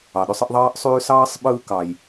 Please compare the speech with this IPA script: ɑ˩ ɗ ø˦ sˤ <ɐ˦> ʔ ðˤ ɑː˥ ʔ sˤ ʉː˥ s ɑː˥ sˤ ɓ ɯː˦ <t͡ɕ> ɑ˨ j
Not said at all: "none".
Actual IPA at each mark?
ə˦, k

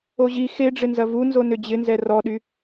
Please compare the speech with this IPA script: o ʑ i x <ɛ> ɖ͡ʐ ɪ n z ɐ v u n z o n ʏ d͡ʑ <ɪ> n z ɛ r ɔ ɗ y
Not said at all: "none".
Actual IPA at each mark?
e, ɪ

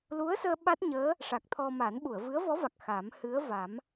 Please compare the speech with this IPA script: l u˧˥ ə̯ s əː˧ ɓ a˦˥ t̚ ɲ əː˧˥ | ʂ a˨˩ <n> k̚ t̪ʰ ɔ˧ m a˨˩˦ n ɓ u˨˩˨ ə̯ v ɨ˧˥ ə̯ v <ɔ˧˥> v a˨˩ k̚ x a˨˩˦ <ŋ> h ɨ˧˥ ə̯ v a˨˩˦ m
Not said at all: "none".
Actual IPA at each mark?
none, ɔ˧˥, m

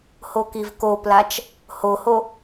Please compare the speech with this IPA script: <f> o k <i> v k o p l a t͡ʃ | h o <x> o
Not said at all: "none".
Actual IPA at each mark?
h, i, h

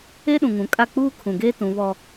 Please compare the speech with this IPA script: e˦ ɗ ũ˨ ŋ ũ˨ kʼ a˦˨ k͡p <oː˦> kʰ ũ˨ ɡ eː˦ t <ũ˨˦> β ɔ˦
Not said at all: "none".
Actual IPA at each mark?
uː˦, ũ˨˦

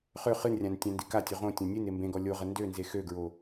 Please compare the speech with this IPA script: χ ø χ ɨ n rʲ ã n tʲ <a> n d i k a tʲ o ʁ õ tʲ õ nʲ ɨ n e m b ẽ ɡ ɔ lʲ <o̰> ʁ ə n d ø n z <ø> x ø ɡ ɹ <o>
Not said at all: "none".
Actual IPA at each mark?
ã, o, e, o

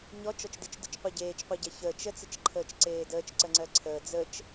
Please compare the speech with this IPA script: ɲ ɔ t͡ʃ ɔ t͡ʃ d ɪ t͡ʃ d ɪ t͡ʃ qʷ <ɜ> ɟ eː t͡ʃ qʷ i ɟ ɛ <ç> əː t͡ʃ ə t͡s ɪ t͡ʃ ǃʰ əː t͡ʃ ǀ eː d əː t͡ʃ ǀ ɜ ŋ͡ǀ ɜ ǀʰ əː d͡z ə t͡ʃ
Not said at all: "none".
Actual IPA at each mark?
ɛ, ç

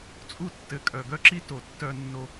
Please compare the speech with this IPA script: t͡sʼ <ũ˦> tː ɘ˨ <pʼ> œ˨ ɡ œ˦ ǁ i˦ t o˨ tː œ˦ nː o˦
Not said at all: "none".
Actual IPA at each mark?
u˦, kʼ

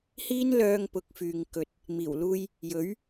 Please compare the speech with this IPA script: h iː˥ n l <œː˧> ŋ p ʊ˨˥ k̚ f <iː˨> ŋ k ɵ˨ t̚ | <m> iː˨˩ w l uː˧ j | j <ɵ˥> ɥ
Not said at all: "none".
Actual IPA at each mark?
œː˧, yː˨, m, ɵ˨˥

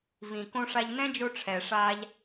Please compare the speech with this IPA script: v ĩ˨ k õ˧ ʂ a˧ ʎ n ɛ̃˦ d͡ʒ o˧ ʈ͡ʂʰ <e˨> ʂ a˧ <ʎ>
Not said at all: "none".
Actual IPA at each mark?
ɛ˨, ʎ

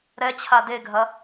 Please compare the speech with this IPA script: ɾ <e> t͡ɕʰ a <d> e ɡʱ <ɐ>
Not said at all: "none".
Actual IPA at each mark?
ɛ, d, ɐ

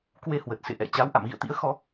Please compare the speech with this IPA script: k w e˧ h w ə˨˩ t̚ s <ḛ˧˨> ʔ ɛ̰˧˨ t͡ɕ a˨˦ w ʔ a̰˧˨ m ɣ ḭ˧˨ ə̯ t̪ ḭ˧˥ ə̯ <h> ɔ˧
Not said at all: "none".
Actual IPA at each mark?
ḛ˧˨, x

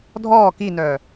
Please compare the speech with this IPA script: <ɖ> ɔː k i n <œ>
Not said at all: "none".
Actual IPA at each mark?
dʱ, œː

